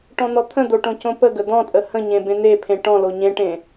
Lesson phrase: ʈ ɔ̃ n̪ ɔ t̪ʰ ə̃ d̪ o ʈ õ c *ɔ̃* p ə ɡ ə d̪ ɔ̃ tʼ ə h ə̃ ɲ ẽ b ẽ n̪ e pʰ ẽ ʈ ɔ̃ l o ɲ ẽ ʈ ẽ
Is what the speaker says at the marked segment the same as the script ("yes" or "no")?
no